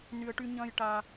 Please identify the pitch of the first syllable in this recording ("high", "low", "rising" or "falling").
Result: high